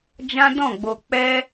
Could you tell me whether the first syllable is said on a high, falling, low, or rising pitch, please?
high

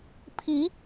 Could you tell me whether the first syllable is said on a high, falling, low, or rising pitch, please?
rising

